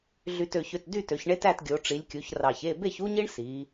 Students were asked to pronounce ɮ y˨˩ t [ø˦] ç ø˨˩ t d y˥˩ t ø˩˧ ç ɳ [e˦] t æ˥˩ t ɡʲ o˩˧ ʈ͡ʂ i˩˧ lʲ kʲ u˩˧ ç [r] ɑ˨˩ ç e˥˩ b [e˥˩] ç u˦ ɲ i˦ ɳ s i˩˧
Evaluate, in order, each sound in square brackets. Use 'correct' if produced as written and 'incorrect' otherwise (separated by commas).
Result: incorrect, correct, correct, correct